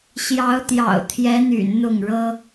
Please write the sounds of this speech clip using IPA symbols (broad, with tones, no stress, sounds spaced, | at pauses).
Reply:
ɕ j ɑ˧˥ ʊ̯ t̪ j ɑ̰˨˩ ʊ̯ t̪ʰ j ɛ˧˥ n̪ y̰˨˩ n n̪ ʊ˥˩ ŋ ɻ ɤ˥